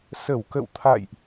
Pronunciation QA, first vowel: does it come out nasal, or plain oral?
oral